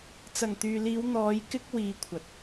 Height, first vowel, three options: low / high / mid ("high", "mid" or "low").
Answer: low